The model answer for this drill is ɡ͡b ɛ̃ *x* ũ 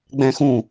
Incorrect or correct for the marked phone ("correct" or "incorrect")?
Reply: correct